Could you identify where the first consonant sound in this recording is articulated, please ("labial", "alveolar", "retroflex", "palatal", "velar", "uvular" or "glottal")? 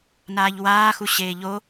alveolar